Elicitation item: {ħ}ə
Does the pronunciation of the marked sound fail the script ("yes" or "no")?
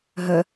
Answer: yes